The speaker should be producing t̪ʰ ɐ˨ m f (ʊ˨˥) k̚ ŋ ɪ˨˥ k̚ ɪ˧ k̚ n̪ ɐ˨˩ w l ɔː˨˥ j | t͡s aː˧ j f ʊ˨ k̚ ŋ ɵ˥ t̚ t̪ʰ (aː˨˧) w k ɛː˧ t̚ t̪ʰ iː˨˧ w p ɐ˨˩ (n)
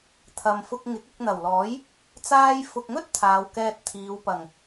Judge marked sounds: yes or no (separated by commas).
no, yes, no